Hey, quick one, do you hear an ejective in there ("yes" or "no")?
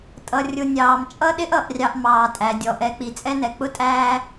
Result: yes